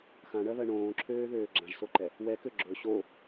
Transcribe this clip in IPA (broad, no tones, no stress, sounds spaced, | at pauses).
x ã ɳ ɜ β ɜ ɳ õː ǁʰ øː ð øː ɡ͡ǁ ã ʒ s o ǃ ɛ | w ɛ k ø ɡ͡ǁ ɵ ɕ o